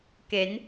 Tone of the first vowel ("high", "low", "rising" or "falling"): rising